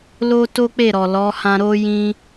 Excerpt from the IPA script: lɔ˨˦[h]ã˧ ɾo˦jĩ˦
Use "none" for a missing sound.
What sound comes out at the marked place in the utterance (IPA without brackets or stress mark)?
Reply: h